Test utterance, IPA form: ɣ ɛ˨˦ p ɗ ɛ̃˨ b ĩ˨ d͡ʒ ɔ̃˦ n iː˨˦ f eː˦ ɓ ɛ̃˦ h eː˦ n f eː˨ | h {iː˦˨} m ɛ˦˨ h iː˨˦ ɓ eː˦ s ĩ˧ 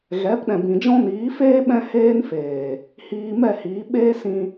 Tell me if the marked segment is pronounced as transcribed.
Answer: no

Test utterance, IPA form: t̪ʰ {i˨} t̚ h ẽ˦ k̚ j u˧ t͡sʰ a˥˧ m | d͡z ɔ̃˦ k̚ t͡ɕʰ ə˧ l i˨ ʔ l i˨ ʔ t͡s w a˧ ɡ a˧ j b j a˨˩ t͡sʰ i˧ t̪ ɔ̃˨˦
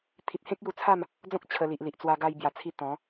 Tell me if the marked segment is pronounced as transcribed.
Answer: yes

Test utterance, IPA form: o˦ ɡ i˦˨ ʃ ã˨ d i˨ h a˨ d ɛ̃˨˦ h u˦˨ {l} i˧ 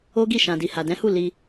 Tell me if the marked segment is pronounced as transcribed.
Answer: yes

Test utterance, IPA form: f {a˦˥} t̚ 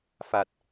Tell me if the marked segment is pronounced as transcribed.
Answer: no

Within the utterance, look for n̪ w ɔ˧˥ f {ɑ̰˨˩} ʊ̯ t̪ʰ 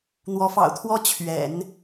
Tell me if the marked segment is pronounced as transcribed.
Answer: yes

